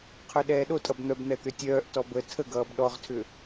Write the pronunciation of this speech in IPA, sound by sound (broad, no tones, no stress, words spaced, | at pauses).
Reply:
qʰœɗɛːɗotʼʌb n̪œbn̪ɛ t̪ʏtʲœːʔtɔ bə tʰəɡʌːb ɗɔʁtʰʏ